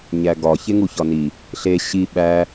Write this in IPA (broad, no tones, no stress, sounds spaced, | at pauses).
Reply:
ɲ æ ɡ ɒ ç e ŋ u ç ɒ n i | ɬ e ɕ i ɓ æ